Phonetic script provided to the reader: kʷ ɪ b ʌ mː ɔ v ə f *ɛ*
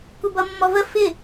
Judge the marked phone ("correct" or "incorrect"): incorrect